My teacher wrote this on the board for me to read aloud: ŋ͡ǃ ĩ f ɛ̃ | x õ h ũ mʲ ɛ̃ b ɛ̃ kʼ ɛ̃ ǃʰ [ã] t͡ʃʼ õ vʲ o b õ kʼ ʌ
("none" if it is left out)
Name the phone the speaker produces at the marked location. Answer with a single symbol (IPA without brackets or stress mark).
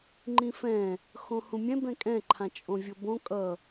ã